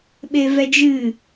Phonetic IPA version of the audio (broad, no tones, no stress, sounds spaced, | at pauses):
ɓ e v ɛ d͡ʒ ɨ